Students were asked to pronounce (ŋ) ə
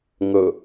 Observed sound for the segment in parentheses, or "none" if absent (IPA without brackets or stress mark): ŋ